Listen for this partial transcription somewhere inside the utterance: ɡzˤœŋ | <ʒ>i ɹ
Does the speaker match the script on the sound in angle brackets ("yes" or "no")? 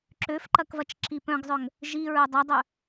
yes